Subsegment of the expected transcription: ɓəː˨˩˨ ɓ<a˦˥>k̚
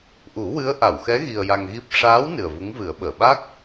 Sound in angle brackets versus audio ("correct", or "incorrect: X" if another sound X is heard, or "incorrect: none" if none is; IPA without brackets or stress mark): correct